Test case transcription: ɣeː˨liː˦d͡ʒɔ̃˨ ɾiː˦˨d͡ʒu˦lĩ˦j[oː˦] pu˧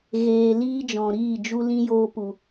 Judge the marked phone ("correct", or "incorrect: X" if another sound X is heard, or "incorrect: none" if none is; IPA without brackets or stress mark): correct